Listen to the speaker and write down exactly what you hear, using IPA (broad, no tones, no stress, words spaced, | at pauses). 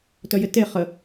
tœjɪte χə